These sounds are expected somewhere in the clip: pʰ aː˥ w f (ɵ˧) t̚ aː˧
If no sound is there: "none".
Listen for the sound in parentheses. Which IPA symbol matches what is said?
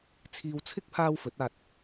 ɵ˨˥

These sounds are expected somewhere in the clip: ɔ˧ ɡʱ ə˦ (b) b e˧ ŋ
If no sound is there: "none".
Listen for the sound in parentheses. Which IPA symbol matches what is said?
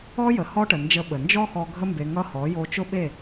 m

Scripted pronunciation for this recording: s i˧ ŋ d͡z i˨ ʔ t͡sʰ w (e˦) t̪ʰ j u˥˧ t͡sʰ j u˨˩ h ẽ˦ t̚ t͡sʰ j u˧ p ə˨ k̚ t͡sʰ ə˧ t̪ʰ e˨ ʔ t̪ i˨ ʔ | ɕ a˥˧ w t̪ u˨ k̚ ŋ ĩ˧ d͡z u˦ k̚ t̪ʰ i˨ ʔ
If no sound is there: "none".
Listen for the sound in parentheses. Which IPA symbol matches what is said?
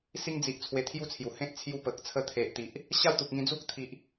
e˧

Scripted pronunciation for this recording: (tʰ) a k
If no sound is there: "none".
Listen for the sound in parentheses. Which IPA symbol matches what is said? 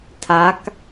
tʰ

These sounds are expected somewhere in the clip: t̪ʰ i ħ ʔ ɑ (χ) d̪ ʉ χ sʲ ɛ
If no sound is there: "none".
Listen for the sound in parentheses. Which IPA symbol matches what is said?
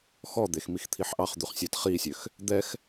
χ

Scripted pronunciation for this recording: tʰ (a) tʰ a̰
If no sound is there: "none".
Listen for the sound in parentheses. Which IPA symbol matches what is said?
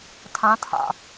ã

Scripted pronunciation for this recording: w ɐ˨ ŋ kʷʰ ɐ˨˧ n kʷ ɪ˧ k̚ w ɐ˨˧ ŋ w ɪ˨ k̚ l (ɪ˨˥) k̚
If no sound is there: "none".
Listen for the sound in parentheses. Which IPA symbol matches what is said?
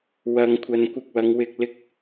ɪ˨˥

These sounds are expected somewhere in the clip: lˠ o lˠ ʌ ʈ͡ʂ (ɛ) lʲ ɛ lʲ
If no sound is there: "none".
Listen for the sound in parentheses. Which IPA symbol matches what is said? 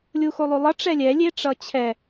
ɛ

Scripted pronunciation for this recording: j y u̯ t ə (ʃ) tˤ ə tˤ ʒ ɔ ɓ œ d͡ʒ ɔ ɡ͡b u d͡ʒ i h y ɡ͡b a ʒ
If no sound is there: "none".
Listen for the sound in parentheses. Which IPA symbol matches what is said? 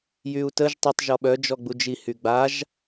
ʒ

